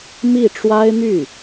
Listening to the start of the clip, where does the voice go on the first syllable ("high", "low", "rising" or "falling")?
falling